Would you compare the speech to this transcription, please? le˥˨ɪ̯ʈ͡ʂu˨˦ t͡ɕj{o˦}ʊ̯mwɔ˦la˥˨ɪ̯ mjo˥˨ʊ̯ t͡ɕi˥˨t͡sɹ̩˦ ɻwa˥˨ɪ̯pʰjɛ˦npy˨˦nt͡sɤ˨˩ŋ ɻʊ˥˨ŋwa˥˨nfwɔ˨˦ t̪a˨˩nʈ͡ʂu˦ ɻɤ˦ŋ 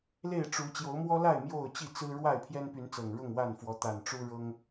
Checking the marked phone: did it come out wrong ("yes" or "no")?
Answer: yes